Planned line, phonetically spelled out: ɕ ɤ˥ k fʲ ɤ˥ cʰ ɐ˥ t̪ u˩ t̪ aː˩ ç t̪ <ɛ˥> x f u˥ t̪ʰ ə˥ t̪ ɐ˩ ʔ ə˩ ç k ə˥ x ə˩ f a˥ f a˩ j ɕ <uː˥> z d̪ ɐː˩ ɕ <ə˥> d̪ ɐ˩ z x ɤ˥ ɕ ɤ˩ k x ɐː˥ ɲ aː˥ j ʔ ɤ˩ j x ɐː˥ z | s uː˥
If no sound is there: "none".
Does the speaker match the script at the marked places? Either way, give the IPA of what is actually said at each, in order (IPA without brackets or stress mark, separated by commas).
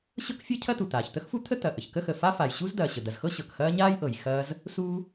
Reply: ə˥, u˥, ə˩